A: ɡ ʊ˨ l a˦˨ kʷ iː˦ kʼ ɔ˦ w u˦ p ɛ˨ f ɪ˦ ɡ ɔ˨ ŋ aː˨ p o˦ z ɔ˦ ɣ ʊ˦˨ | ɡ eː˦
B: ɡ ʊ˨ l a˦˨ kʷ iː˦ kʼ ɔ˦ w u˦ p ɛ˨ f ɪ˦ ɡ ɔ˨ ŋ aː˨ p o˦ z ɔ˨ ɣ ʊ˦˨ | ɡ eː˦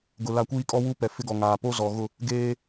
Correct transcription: B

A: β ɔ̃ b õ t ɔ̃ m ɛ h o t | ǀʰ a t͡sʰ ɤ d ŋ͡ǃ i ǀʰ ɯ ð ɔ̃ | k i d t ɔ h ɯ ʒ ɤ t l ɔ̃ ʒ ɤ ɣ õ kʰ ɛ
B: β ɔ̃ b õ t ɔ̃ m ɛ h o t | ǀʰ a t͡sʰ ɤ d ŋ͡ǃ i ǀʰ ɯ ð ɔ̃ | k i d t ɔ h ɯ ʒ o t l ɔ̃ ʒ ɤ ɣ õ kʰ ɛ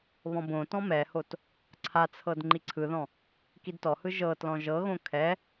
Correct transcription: A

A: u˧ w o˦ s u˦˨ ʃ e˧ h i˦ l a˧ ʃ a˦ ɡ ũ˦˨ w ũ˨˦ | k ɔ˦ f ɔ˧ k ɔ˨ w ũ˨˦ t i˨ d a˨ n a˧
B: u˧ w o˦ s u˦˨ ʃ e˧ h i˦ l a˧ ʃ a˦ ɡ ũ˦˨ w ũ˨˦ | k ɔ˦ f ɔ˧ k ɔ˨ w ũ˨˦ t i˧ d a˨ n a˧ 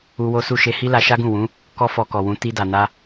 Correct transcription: B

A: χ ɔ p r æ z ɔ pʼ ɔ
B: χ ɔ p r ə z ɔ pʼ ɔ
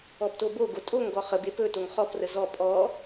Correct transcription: B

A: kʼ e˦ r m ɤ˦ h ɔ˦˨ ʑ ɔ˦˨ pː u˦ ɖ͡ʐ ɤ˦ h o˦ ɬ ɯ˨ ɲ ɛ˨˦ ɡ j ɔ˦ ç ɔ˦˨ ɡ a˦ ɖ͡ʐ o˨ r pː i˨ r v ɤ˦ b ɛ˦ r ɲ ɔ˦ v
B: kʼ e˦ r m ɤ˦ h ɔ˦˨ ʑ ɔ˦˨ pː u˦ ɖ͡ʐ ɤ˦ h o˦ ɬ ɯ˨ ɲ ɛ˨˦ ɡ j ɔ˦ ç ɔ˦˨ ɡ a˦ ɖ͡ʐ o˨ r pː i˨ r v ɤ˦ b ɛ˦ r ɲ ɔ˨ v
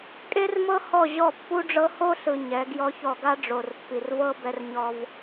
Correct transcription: A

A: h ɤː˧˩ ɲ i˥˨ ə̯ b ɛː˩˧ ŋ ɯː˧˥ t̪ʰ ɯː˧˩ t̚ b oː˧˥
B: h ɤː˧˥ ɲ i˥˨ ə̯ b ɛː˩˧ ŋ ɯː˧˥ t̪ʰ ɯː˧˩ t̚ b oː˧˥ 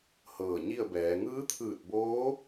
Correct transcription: A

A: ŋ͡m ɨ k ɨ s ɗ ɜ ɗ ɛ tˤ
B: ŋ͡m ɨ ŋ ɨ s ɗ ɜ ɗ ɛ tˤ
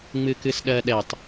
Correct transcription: A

